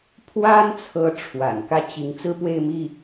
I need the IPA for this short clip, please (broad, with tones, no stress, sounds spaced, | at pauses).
pʰ w a˥ n t͡sʰ ɤ˧˥ ʈ͡ʂʰ w a̰˨˩ n k ä˥ t͡ɕ i˧˥ ŋ t͡s ɹ̩˥ p w e˥˧ ɪ̯ m i˥˩